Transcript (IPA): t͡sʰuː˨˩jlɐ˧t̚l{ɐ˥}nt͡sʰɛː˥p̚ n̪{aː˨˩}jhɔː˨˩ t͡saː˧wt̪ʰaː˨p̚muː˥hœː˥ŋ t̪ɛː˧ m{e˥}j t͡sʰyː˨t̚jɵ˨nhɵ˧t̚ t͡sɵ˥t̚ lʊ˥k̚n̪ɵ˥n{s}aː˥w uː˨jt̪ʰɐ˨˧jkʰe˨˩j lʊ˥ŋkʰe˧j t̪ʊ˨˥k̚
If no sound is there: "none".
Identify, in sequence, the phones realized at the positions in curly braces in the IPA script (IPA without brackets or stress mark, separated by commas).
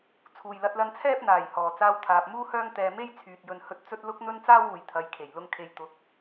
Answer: ɐ˧, aː˨˩, e˥, t͡s